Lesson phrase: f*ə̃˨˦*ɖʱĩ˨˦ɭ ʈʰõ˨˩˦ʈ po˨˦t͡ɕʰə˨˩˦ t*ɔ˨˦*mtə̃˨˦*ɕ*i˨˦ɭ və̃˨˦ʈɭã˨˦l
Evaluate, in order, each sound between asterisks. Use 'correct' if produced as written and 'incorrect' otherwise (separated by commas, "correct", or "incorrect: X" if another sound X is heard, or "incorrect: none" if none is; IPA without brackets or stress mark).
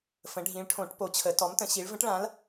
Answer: correct, correct, correct